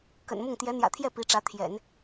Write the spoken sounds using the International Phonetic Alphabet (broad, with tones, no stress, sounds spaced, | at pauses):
k ə̰˨˩ n m ʊ˥˩ ŋ t̪ j ɛ˧˥ n̪ j ä̰˨˩ t̪ʰ j ɛ˥˩ p i˧˥ ʈ͡ʂ ä˧˥ t̪ʰ j ɛ̰˨˩˦ n